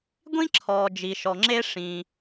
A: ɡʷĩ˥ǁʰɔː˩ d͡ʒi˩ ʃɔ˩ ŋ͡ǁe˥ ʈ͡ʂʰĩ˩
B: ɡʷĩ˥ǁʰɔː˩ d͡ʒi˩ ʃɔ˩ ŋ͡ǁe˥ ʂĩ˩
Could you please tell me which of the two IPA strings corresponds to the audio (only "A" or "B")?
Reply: B